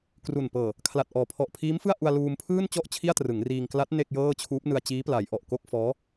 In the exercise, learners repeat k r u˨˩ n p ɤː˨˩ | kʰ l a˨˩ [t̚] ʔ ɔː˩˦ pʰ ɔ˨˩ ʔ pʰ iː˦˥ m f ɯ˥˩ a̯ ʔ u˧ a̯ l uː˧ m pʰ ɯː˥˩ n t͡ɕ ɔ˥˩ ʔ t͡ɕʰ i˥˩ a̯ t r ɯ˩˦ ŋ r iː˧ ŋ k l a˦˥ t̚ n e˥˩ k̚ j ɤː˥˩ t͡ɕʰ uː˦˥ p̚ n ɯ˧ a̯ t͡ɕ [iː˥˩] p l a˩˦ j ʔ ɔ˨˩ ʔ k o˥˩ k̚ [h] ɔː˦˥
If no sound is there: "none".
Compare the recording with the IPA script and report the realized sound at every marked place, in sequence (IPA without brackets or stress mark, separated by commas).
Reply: t̚, iː˦˥, f